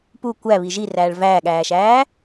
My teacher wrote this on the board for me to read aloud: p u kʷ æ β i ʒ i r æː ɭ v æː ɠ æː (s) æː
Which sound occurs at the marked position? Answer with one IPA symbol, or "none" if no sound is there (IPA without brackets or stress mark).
ʃ